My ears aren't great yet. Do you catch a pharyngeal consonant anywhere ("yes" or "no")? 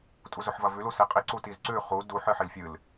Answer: yes